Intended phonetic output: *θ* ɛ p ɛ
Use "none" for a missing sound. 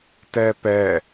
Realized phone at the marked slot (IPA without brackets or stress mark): t